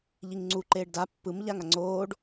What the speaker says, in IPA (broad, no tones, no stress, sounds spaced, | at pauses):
ʎ i ŋ ŋ͡ǀ u ǃ eː ɖ d a pː ɯ m ʎ a ŋ a ŋ͡ǀ oː ɖ